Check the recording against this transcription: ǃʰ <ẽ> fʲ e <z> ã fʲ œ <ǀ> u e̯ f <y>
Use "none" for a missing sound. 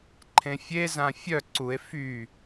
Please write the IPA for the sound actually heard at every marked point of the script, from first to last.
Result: ẽ, z, ǀ, y

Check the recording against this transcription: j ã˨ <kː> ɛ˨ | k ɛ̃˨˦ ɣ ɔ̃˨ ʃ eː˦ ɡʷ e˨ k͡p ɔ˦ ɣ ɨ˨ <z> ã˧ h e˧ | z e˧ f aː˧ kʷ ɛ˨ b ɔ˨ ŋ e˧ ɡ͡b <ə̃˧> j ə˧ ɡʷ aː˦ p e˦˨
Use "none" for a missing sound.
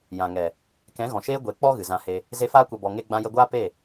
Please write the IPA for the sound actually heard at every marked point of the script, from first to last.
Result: ŋ, z, ã˧

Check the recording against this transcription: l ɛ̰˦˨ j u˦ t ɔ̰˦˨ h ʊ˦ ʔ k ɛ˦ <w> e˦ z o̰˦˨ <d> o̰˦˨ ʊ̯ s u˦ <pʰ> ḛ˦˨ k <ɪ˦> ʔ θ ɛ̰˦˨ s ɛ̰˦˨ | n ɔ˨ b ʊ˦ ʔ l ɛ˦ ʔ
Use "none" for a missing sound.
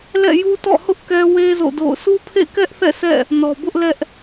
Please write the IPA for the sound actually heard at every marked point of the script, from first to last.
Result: w, d, pʰ, ɛ˦

